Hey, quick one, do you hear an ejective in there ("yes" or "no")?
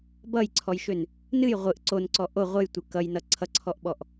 no